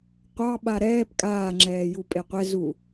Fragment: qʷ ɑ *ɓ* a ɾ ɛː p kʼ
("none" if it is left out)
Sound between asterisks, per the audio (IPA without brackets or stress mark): ɓ